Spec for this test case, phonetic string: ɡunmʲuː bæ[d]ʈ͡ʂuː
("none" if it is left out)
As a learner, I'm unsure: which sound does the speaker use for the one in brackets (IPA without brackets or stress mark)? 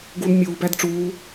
d